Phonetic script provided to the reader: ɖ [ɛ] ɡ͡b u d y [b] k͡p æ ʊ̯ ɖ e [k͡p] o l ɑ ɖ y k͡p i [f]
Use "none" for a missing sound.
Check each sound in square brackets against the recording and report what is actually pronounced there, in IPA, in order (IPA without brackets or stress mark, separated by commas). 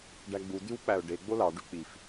æ, w, ɡ͡b, f